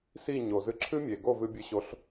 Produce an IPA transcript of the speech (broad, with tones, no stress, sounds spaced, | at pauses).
s i˥˩ ɲ o˩ z ɨ˧ ǁʰ ɨ˥ mʲ e˩ ɡ o˥˩ v ɨ˧ bʲ ɨ˨˥ ɕ o˨˥ ɬ